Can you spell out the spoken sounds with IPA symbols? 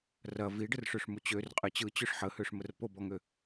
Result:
r ɐ v i ɖ ə r ʂ ø ʂ m u t͡ɕ ø r qʼ ɨ t͡ɕ ɯ t͡ɕ ø ʂ ħ ə h ø ʂ m ə r p o b ɔ ŋ ø

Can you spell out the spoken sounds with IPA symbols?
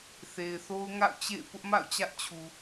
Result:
θ e˨ ɪ̯ θ o˦ ʊ̯ ŋ a̰˦˨ ʊ̯ t͡ɕ ḛ˦˨ ɪ̯ p ʊ˦ ʔ m a̰˦˨ ʊ̯ t͡ɕ ä˦ ʔ t͡ɕʰ u˨

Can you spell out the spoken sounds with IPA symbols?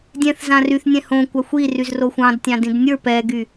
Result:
dʲ ɛ̃ θ z ã r y θ nʲ ɛ̃ h õ kʷ a xʷ i r y z r o xʷ ɑ̃ d tʲ ɑ̃ d ĩ d nʲ ə˞ p ɛ ɡ y

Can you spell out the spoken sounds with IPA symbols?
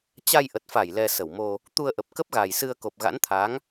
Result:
t͡ɕ a˧ j ʔ ə˨˩ t̚ f a˧˩ j l ɛ˨˩ s ə˧˩ w m o˧ | t̪ u˧ ə̯ ʔ ə˨˩ p̚ k ə˦˥ p̚ ɣ a˨˩ j s ɨ˧ ə̯ k o˨˩ p̚ ɣ a̰˧˥ n t̪ʰ a˨˦ ŋ

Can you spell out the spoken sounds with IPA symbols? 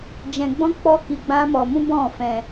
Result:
d͡ʒ ɛ̃˧ ɡ͡b ɔ̃˦ k͡p ɔ˦ k i˧ ɡ͡b ã˦ m ɔ˧ m ũ˦ b ɔ̃˦˨ f ɛ̃˧

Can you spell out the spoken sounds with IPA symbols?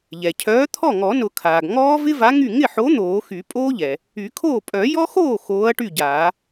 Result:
ʎ ɛ˩ cʰ œː˨˥ t̪ʰ ɔ˥˩ ŋ ɔ˨˩˦ n ʊ˨˩˦ kʰ aː˩ ɡ ŋ ɔː˦˥ v ɪ˦˥ v a˨˥ ŋ y˥˩ ŋ ɪ˥˩ ħ o˨˥ n̪ oː˨˩˦ x y˨˩˦ pʼ oː˦˥ ʎ ɛ˩ | y˨˩˦ kʰ oː˥˩ pʼ œ˨˩˦ j ɔ˦˥ x oː˥˩ x oː˨˥ ɐ̯ ʈ y˥˩ ɟ aː˨˩˦

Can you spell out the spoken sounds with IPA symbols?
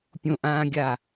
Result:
pʲ õ ʔ ãː ɡʲ a

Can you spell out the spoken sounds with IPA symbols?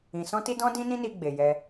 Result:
ĩ˧ s ɔ̃˦ t i˦ d ɔ̃˦ d ĩ˦ n ĩ˦ n i˧ ɡ͡b e˧ j ɛ˦

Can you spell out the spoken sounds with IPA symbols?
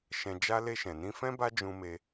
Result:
ʃ ɛ̃˧ d͡ʒ a˦ l e˧ ʃ ɛ̃˨ n ĩ˧ f ɛ̃˦ b a˦ d͡ʒ ũ˧ m e˧

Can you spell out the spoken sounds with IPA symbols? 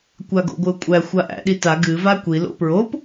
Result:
kʷ a ɡ o̰ ɡʷ ɨ ʊ̯ kʷʼ æ xʷ a ʔ æ̰ ɗ i t a ɡ ɨ v a kʷ i l o̰ p ɹ o p

